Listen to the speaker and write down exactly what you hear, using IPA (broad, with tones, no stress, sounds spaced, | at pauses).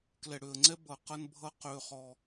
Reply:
k l ɛ˨ ɽ ø˨ ə̯ ŋ͡ǀ ɛ˦ b ʌ˨ q ʌ˦ n bʱ ʌ˦ q ø˦ χ ɔ˦